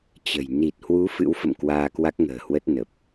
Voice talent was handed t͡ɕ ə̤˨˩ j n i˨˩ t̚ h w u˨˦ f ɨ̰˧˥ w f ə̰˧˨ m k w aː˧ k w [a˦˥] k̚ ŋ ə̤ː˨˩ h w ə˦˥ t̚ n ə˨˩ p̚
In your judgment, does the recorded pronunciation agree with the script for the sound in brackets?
yes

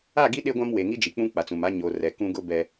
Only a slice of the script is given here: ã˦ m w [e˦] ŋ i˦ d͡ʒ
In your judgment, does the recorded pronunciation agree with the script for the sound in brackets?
no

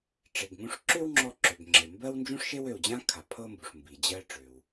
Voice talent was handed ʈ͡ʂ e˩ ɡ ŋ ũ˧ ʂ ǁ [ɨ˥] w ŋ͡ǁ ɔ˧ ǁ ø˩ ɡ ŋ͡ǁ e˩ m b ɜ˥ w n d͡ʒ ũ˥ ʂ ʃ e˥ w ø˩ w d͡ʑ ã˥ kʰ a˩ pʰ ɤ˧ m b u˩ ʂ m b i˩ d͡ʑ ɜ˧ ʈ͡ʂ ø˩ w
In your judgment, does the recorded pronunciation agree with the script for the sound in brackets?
no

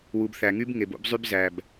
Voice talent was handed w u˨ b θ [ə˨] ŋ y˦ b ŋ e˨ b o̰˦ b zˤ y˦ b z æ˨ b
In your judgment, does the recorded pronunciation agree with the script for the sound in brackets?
no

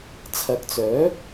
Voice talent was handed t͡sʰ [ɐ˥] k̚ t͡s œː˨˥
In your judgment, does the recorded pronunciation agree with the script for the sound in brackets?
no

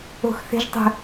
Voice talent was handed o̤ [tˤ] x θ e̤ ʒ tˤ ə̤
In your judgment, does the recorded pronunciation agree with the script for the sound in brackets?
no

